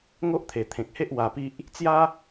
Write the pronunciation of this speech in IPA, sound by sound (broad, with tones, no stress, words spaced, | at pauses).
ŋo˦ʔt̪ʰe˨˩t̪ʰẽ˨k̚he˦ʔ wa˧pi˦ʔ | t͡sja˦